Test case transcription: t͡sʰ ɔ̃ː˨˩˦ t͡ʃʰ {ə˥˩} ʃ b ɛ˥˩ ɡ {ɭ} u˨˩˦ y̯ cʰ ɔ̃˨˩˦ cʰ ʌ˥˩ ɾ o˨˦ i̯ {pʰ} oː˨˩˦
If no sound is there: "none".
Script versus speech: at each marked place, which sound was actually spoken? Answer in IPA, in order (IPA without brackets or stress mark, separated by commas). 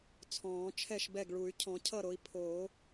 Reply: ɛ˥˩, ɭ, pʰ